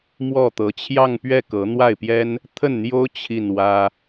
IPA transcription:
mwɔ˥˩ t̪ɤ˧˥t͡ɕʰjɑ˥˧ŋpɥɛ˥˩ kɤ˧˥n̪wa˥˩ɪ̯pjɛ˥n | t̪ʰə˥˩nn̪jo˥ʊ̯ t͡ɕʰi˥˩nwä˥

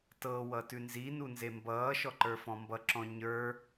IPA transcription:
tɤwʌ tʉnzinu nzembʌːʃɔ ǃə˞fɔ̃mbʌǁɔ̃ ɲə˞

